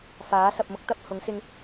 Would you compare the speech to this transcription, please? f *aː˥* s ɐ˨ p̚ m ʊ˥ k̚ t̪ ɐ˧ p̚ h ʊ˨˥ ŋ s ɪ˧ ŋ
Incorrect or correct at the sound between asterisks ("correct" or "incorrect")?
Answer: incorrect